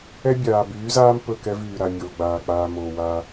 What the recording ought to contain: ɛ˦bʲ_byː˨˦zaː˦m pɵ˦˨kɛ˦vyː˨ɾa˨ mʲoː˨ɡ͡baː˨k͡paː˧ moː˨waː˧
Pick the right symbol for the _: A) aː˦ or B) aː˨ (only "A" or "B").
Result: B